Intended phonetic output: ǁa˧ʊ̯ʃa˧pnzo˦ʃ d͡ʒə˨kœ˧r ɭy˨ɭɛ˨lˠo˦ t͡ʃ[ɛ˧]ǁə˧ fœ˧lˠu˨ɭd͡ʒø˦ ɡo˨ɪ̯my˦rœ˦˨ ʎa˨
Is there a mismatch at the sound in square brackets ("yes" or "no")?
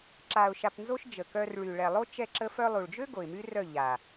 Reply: no